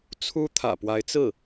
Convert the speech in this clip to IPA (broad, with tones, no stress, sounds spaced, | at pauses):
t͡sʰ u˥ t̪ʰ ä̰˨˩ p w a˧˥ ɪ̯ t͡s ɹ̩˥˩